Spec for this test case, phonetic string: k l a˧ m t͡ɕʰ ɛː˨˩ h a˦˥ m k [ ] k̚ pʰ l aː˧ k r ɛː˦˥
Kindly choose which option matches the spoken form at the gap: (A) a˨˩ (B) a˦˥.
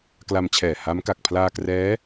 A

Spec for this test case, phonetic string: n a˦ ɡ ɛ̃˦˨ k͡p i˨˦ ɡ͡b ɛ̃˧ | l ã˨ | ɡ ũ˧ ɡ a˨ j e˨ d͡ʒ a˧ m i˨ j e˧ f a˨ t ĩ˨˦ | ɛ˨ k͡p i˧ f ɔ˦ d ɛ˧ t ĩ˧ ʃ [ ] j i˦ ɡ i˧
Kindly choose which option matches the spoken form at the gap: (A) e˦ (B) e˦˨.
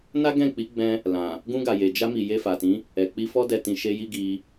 A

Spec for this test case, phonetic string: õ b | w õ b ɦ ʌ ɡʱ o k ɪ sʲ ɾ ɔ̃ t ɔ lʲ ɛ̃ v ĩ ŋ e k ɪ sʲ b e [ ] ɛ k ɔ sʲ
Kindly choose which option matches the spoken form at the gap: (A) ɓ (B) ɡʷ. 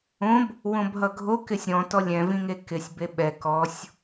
A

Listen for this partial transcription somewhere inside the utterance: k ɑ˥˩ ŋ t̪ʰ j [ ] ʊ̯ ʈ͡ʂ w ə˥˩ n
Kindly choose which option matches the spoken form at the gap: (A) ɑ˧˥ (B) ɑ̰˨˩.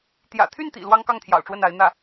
B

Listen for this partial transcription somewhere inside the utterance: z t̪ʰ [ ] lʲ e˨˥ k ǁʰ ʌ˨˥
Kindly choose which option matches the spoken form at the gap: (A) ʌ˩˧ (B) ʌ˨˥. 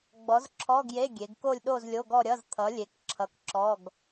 B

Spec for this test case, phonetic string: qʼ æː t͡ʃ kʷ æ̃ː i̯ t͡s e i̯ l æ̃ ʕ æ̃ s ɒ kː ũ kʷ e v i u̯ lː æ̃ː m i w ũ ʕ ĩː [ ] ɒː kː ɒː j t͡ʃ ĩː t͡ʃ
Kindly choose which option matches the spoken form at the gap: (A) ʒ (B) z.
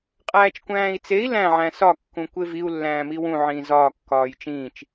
B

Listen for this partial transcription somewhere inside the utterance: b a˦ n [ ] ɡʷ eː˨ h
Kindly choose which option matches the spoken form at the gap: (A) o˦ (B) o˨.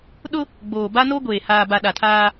A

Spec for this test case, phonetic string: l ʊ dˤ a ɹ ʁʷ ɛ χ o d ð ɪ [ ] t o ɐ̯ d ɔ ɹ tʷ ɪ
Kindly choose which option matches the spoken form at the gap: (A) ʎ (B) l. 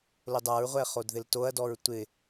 B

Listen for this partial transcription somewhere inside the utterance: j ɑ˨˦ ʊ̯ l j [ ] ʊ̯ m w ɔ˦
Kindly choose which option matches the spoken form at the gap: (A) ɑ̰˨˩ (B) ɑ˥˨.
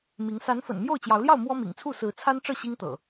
B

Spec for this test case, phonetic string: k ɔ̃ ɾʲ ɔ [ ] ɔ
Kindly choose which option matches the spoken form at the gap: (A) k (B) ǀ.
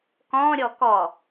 A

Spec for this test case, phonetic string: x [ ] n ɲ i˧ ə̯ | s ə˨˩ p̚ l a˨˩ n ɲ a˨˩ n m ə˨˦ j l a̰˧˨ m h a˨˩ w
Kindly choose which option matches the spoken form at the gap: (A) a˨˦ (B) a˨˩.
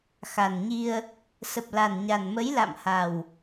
B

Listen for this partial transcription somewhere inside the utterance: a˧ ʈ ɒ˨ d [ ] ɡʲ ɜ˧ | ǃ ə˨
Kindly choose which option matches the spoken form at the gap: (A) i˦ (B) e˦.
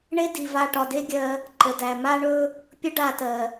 B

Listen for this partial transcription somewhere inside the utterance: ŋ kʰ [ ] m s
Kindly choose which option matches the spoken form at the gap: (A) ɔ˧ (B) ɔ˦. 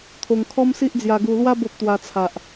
B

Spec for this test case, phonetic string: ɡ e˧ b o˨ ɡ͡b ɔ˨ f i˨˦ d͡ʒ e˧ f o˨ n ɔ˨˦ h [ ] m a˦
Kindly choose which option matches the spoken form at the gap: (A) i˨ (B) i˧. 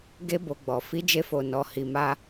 B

